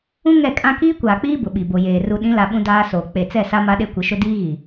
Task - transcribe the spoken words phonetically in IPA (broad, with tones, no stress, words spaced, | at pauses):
ũ˦ ŋɛ˦˨kʼã˦ kiː˦kʷaː˨k͡piː˦ bʊ˨ɓi˨ bo˨jeː˨ ru˨ɗĩ˨˦la˨ ɓũ˦daː˦soː˨ k͡pe˨t͡sɛ˦˨ sa˦ma˦ɗe˦ kʷɪ˨˦ʃʊ˦ diː˦ɣi˨